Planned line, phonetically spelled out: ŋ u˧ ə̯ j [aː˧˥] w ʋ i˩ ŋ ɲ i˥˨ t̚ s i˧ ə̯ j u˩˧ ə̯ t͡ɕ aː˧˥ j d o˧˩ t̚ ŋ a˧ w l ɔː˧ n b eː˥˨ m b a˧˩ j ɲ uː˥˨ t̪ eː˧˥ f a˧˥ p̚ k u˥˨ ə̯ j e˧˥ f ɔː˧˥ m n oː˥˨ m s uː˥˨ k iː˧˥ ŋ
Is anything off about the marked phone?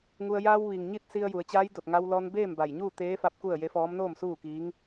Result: yes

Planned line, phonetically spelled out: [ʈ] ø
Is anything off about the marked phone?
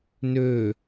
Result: yes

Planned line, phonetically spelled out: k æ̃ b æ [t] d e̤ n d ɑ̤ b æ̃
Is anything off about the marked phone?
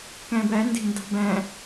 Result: yes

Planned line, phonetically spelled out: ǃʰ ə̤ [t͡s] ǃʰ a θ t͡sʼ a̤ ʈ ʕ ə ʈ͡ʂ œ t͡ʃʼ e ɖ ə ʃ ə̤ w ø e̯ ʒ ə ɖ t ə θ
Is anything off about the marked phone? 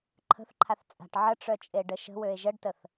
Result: yes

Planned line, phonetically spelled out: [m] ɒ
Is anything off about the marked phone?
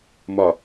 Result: no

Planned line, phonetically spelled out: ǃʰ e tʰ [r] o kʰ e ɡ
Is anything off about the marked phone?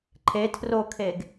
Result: no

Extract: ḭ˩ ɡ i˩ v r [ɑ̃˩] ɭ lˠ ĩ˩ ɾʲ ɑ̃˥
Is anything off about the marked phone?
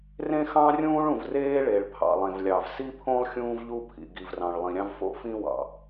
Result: no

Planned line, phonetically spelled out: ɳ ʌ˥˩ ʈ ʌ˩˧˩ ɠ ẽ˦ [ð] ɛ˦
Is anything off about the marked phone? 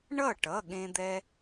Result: yes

